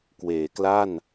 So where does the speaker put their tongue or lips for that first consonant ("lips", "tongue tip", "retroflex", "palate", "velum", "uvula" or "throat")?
velum